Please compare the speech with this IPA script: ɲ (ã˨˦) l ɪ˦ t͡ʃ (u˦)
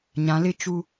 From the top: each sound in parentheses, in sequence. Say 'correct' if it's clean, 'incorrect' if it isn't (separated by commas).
correct, correct